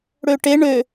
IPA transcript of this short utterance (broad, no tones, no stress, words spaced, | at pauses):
ɽøʈe ɳø